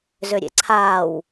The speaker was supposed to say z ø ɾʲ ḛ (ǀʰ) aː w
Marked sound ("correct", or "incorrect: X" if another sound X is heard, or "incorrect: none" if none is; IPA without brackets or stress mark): correct